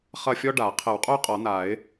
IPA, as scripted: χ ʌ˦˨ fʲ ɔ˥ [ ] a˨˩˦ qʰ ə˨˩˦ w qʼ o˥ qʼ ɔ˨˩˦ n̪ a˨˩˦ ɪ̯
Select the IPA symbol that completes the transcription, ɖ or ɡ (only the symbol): ɖ